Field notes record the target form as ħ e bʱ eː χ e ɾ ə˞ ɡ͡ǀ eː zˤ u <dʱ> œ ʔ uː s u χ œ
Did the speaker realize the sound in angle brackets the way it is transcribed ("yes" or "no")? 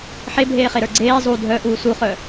yes